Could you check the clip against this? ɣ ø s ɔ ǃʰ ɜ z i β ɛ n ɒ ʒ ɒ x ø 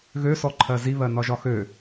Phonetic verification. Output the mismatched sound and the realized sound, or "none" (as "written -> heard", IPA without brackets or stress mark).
ɛ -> ɜ